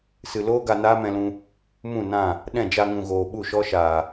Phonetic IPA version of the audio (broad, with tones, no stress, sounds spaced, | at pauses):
s ɨ˨ l oː˦ ɡ a˧ n aː˦ m ɛ̃˧ l ũ˧ | m ũ˦˨ n ã˦˨ | ɗ ɛ̃˦˨ d͡ʒ a˧ ŋ ũ˨ ɣ oː˨ ɓ u˦˨ ʃ ɔ˦ ʃ aː˨